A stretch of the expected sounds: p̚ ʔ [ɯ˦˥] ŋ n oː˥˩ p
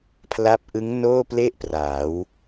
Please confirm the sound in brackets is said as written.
yes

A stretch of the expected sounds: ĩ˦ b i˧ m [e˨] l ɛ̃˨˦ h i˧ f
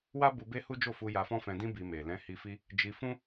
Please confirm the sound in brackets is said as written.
yes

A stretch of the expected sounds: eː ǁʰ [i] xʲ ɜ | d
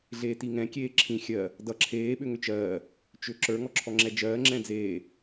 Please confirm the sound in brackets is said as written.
no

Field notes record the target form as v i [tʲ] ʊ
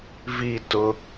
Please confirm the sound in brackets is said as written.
no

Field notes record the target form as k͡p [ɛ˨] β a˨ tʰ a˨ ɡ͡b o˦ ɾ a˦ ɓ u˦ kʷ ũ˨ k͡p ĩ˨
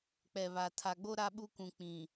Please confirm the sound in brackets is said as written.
yes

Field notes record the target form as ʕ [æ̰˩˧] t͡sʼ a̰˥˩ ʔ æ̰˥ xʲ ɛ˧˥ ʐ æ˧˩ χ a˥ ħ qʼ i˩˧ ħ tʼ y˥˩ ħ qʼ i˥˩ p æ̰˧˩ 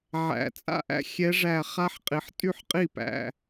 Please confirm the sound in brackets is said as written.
yes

